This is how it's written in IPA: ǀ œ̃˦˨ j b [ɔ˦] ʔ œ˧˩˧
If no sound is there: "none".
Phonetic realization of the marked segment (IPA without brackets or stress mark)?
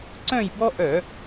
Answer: ɔ˦